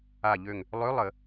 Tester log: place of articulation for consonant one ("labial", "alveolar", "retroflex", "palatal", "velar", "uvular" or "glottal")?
palatal